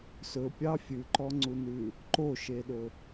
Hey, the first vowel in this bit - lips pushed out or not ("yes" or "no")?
yes